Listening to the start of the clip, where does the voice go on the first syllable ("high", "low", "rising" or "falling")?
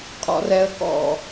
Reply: high